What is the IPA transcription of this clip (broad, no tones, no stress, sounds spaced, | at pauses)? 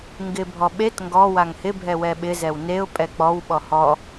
ŋ ɡ ɪ bʱ ɔ ɓ e t ŋ ɡ ɔ w a ŋ h ɪ bʱ ɛ w ɛ ɓ ɪ z ɛ w n e ʊ̯ pʼ ɛ k͡p ɔ w ɓ ɔ h ɔ